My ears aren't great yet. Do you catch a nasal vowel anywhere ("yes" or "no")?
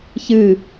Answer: no